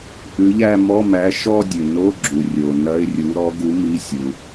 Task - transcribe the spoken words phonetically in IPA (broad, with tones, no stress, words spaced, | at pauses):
ʔʉ˨˥ʎæ˥˧ mɔ˧˥˧mæ˨˥ ʃɔ˥˧dʲʉ˩ no˧˥˧ɡ͡ǁu˩ rʲo˩nɐ˧˥˧ɪ̯rʲu˨˥ ɾɔ˨˥ɡu˨˥ mi˧˥˧ sʲu˩